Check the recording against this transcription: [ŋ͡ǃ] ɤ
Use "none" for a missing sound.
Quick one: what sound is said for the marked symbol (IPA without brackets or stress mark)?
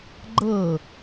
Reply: ɡ͡ǃ